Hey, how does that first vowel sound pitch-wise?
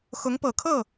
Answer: rising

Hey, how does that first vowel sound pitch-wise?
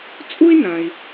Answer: high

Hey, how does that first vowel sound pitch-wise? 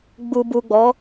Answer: low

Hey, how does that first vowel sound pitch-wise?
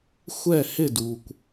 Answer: falling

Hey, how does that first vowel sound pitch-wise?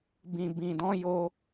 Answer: low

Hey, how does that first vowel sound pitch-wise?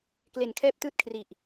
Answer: low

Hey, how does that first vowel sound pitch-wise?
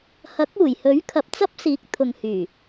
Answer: rising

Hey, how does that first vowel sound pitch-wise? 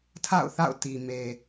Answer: falling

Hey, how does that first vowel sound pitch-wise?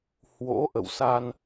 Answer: rising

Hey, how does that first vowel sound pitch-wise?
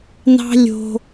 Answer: high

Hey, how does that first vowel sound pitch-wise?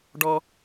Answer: high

